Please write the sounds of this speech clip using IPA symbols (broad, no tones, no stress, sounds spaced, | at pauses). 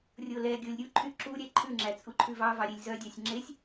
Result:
rʲ o l ɛ ɡʲ o lʲ ɾʲ u ǃʰ y ǁ u ɾʲ ɛ ǃʰ ʉ ŋ͡ǁ æ t͡sʼ u ǃʰ ʉ v ɑ v ɑ ɾʲ e lʲ z œ dʲ ɑ sʲ ŋ͡ǁ e sʲ